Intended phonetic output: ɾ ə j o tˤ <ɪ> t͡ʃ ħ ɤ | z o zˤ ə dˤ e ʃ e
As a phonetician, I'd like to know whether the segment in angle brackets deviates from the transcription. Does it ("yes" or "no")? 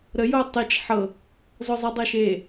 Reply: yes